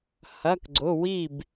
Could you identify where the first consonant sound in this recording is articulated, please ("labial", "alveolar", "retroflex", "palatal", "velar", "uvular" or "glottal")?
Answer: glottal